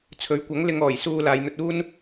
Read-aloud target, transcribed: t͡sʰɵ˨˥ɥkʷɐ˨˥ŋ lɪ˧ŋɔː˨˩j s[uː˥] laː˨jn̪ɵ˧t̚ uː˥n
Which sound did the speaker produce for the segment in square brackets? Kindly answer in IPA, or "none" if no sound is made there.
uː˧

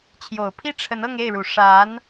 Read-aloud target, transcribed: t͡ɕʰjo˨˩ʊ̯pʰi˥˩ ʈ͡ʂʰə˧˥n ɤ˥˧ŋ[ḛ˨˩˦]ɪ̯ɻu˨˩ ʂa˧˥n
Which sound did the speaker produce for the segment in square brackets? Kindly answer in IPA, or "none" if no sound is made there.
e˥˩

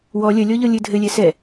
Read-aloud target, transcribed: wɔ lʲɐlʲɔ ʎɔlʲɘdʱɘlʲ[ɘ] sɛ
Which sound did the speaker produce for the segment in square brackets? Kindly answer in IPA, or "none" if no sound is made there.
ɛ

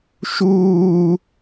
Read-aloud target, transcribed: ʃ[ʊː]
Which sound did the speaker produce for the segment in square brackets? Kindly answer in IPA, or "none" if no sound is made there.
uː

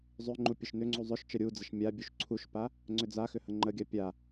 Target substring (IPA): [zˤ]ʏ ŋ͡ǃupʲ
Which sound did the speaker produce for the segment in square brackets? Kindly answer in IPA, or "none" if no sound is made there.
zˤ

